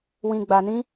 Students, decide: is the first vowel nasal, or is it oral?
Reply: nasal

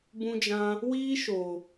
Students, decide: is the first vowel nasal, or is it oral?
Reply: nasal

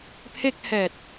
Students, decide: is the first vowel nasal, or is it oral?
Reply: oral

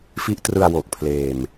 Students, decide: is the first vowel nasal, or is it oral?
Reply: oral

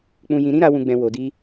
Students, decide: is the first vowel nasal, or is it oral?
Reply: nasal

